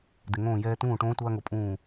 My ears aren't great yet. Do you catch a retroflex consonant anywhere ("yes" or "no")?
yes